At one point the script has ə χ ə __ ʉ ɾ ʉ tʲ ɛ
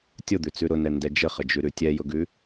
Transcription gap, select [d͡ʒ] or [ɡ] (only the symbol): d͡ʒ